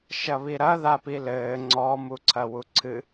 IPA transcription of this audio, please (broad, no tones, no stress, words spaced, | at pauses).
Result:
ʃɐβiɾɐ ðapilɘː ŋ͡ǀɔ muǀʰɐwuǀʰɨ